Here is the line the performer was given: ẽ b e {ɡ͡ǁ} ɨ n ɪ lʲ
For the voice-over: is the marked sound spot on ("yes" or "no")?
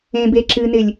no